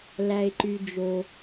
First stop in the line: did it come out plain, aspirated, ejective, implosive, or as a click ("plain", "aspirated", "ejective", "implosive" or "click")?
click